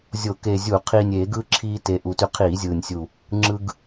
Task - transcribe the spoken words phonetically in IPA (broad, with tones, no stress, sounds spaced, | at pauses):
zʲ o˧˩˧ k e˨˩ zʲ u˧˩˧ qʰ iː˨˩ nʲ eː˧˩˧ ɡ ɯː˧ ǁʰ iː˧ t e˨˩ ʔ u˨˩ t y˧ qʰ iː˧˩˧ zʲ ɯː˨˩ nʲ sʲ u˨˩ | ŋ͡ǁ ɯ˧ ɡ